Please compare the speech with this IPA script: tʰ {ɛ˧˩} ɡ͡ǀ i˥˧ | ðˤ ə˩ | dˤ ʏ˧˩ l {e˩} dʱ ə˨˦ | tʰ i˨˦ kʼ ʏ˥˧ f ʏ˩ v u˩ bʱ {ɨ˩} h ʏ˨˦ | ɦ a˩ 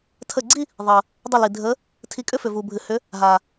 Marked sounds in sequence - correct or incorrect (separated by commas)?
incorrect, incorrect, correct